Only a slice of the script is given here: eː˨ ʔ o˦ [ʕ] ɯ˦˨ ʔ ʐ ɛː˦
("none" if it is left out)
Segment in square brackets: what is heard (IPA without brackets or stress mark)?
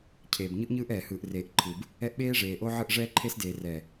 ʕ